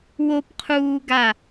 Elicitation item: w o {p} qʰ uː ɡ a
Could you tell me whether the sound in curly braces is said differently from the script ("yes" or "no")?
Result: no